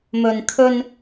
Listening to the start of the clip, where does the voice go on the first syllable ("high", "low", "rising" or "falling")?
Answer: low